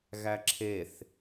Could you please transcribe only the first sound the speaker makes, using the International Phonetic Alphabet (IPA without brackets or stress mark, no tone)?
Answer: ɣ